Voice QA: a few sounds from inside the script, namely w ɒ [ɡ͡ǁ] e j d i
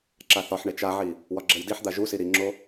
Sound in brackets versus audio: correct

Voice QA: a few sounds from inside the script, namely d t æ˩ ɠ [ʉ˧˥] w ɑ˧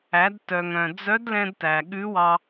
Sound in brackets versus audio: correct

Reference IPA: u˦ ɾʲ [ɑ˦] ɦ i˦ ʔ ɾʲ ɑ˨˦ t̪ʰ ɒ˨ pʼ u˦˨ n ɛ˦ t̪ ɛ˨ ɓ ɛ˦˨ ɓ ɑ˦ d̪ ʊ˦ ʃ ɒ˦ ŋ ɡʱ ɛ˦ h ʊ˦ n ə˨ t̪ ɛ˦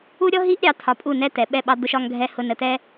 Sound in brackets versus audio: incorrect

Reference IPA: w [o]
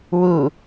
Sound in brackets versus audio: incorrect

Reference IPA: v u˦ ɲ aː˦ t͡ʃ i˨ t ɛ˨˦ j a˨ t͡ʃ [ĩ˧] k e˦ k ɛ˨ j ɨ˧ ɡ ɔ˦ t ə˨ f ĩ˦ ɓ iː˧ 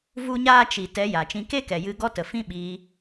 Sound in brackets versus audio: correct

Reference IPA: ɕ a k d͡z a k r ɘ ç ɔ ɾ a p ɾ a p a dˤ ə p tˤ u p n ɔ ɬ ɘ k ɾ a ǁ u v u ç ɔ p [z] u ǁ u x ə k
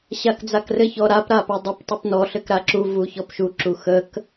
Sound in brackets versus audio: incorrect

